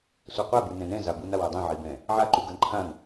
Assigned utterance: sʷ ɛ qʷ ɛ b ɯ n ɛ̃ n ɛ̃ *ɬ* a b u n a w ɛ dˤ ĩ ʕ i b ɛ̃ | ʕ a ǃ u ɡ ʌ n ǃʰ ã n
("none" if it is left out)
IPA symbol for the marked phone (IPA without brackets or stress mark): z